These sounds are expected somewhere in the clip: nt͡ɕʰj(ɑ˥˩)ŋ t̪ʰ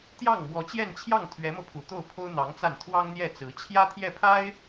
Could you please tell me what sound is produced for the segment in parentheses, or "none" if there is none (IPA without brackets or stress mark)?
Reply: ɑ˥˩